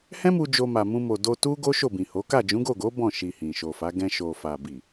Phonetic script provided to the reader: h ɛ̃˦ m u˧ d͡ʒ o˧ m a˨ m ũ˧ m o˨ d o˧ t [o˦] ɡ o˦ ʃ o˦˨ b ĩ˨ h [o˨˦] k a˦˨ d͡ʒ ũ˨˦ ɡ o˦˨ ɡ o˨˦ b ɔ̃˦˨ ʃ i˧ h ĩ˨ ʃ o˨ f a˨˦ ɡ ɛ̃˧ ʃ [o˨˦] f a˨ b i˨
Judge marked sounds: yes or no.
no, yes, no

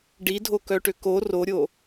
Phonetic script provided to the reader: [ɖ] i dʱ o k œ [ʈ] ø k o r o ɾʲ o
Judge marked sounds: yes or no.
yes, yes

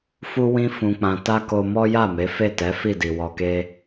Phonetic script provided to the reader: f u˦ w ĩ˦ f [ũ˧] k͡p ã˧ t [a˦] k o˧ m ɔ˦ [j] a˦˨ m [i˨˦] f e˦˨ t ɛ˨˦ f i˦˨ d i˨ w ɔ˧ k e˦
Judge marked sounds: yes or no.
yes, yes, yes, no

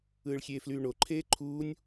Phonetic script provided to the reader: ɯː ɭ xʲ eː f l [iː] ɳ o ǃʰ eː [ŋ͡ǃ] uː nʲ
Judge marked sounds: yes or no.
no, no

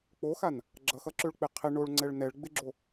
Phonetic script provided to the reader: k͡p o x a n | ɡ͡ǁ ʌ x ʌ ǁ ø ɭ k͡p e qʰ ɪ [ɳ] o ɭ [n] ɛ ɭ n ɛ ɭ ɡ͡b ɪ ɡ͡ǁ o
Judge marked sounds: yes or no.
yes, no

